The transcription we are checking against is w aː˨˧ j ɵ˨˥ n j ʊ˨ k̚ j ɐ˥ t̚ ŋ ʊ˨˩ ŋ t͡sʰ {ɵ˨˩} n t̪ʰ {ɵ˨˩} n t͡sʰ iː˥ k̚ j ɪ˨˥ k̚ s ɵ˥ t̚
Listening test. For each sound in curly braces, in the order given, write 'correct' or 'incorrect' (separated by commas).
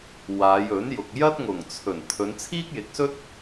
correct, incorrect